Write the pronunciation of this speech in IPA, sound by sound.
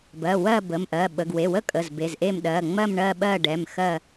bɜ˩˧˩wɜ˥˧bə˩˧˩mʔɜ˩˧˩ ɓə˩˧˩ɡwe˩˧˩wə˥˧ kʼə˩˧˩zbe˩˧˩zʔe˥˧m ɗɜ˩˧˩ŋ͡mɜ˥˧mɳɜ˥˧ ɓɜ˥˧ɖɛ˩˧˩mxɜ˥˧

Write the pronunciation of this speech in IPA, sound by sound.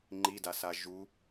ŋ͡ǃidasa ʒu

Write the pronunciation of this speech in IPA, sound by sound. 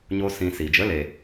ɲo˧ sĩ˧si˨ d͡ʒə˨˦le˨

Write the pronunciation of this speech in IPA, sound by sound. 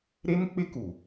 ɾe˦nk͡pɪ˦ku˨

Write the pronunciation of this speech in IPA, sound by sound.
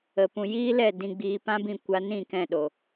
ə˨pũ˨jiː˦lɛ˦˨ dĩ˧ɡ͡biː˧ pã˦bĩ˦˨ kʷa˧nĩ˦˨kɛ̃˦˨ɗo˨

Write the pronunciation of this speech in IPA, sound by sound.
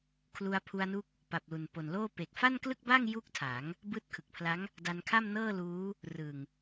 kʰlu˧a̯pʰu˧a̯nu˦˥k̚ | pa˨˩p̚lu˨˩npo˨˩nloː˥˩ pe˨˩k̚fa˥˩nklɯ˥˩k̚ba˥˩ŋ ju˥˩k̚tʰa˩˦ŋ | bɯː˦˥t̚kʰɯ˨˩k̚pʰla˦˥ŋ | da˧nkʰa˥˩mnɤː˥˩luː˦˥ | rɯ˨˩ŋ

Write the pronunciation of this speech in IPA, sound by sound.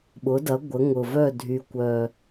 ɓʊ˩˥dɐ˩˥ ɡʷə˩˥ŋʊ˨˩ vœ˥˩dʱy˨˩kʷœ˨˩

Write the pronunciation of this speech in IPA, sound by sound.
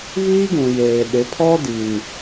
βiː˦ɡũ˨jeː˨ ɗɪ˨˦pʰɔ˦ di˨n

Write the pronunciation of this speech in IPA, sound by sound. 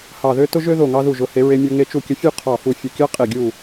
hɑ˧˩ðø˥ tʊ˥ʒø˥ ðo˧˩ŋɑ˧ðu˧˩ʒʊ˩˧ he˩˧ɹe˧mʲo˧ ŋe˧t͡ʃu˧˩kʲə˧fʲu˥˧ qʰɑ˧˩fu˧˩ fʲʊ˧˩kʲɑ˥qʼe˧˩ ɡʲu˧˩

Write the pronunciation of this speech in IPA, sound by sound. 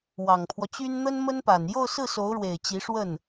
wɑ˨˩ŋpʰwɔ˦t͡ɕy˥n n̪ə˥nmə˥npa˨˩n jo˥˧ʊ̯sɹ̩˥˩so˧˥ʊ̯ɻwe˨˩ɪ̯ t͡ɕi˧˥ʂwə˥˩n

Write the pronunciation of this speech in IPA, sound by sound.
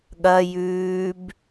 ɠɐ jʉːb

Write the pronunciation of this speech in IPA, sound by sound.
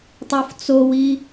tˤoft͡sowi

